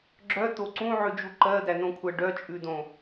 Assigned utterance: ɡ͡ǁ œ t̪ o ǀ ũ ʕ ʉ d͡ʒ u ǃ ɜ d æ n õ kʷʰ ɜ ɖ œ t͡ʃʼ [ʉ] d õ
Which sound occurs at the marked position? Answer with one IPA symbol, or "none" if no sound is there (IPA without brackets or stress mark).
ʉ